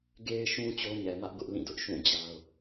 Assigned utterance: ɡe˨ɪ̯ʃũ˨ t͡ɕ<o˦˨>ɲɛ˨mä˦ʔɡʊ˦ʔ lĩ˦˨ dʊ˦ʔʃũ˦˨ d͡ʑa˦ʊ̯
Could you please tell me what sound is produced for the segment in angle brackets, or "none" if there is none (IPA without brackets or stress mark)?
o˦